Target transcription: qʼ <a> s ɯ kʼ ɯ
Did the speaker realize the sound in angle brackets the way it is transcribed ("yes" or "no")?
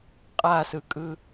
yes